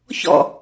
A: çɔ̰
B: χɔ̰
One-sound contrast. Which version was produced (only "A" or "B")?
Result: A